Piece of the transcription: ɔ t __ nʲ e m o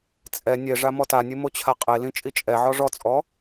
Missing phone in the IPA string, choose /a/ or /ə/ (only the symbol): a